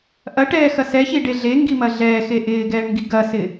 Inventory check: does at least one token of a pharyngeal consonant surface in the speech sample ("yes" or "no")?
no